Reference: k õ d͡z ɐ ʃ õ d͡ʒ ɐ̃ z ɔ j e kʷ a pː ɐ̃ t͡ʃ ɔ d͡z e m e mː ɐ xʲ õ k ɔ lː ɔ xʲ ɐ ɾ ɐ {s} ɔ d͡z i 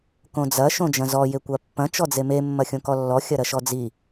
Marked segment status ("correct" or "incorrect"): incorrect